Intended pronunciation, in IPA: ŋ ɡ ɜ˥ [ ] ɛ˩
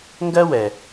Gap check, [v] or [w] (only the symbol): w